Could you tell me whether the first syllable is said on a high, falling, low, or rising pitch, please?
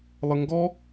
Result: low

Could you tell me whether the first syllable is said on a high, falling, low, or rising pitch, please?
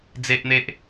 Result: high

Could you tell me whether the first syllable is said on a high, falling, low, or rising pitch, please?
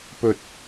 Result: low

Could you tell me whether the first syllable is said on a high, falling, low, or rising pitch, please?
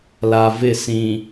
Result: low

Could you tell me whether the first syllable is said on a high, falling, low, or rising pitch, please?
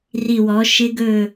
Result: low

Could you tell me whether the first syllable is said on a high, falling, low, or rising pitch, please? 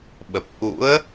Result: low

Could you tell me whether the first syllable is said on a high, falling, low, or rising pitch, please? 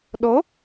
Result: rising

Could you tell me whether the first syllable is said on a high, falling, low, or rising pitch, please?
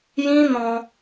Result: high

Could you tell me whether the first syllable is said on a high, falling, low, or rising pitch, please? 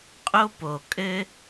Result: high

